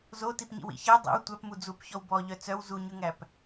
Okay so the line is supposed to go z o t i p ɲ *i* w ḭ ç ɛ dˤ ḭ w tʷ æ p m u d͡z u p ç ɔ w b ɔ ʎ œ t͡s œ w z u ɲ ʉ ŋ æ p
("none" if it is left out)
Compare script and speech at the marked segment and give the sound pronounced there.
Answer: ḭ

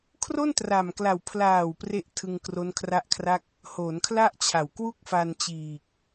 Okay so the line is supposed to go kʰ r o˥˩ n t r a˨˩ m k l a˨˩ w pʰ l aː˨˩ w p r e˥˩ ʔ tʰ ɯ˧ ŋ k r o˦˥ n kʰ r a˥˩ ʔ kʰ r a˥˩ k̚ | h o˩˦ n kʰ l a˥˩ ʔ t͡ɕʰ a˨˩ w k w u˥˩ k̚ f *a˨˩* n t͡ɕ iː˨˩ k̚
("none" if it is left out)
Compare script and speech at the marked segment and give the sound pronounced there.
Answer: a˧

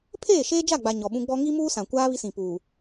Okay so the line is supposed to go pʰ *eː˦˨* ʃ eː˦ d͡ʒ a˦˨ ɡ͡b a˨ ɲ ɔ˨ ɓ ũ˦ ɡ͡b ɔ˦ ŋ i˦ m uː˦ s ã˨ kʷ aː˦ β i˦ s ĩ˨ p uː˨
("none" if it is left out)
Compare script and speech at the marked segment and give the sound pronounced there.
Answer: eː˦˨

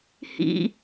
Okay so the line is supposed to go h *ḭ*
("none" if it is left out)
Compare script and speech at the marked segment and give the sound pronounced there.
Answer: ḭ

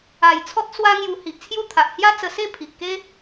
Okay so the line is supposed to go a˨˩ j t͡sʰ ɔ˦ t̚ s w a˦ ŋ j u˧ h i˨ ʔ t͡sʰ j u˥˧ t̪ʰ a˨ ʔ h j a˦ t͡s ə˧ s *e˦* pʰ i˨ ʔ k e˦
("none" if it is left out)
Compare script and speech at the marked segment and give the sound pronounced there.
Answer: e˥˧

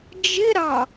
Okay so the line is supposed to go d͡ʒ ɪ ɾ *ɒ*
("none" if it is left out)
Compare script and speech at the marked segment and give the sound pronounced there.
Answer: ɑ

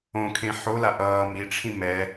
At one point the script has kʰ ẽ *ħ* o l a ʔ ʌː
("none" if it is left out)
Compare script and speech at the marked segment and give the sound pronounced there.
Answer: ħ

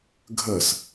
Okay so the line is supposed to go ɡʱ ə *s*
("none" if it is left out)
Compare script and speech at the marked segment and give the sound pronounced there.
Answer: s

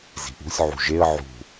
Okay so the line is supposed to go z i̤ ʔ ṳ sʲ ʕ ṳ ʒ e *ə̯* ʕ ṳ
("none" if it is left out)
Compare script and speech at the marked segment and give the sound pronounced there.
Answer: ə̯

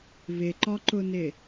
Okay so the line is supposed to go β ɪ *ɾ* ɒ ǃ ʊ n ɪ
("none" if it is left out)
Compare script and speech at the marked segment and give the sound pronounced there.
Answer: ǃ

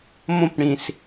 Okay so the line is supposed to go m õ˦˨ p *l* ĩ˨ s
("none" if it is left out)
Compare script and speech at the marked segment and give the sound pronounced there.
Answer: ɽ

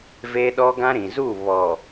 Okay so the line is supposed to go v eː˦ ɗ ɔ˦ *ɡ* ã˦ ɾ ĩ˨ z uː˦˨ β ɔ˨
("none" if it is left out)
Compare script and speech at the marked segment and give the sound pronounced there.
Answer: ɡ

